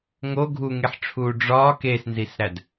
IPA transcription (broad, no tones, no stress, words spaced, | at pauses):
ŋo ɡʱuŋeħʈ͡ʂʰuː ɖ͡ʐɒː keːsnzisɾæd